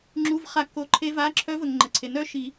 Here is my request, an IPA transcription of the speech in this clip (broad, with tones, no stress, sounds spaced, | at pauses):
ŋ͡ǁ u˩˧˩ v χ a˨˩˦ kː o˩˧˩ ǃʰ e˨˦ v a˩˧˩ ǁʰ œ˨˦ v ə˩ ŋ ŋ͡ǃ ə˩ ǀʰ e˩ n œ˥˨ ʃ i˨˩˦